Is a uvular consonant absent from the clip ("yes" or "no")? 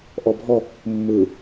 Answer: yes